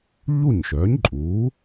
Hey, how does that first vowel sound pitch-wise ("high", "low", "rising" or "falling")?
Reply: falling